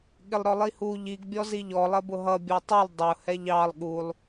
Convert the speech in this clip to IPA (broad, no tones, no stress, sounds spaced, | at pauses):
ɠ ɪ lˠ ɾ ɔ lˠ i h u ʎ i ɡ bʲ ɔ z i ʎ ɔ lˠ ɜ b ʊ ɦ ʌ bʲ ɔ tˤ u lˠ dˤ ʊ h ɛ ʎ ɑ lˠ ɠ u lˠ